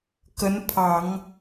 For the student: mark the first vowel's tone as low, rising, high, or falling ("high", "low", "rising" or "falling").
rising